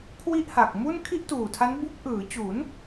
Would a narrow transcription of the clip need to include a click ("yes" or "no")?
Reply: no